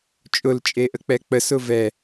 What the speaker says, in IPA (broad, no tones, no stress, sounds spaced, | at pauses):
t͡ʃʼ ʊ l t͡ʃʼ e ʔ ə k͡p ɛ k͡p ə s ʊ v ɛ